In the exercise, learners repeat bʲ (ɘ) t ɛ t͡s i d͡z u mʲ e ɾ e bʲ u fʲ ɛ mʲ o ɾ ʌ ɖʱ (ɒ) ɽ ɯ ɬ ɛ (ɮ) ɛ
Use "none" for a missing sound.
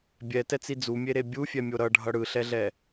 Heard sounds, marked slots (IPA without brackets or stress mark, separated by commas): ɛ, ʌ, ɮ